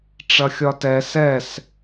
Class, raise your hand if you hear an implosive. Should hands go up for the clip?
no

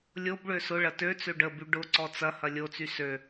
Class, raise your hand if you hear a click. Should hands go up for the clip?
yes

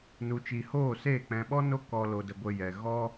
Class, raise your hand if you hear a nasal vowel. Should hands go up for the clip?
yes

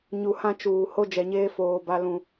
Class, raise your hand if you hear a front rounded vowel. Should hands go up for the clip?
no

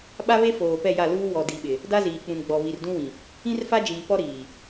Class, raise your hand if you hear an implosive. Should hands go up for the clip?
yes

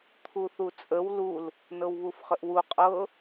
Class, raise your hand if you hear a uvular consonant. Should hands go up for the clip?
yes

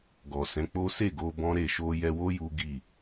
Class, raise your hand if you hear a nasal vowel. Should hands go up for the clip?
yes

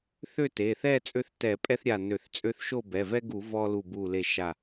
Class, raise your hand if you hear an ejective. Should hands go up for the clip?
yes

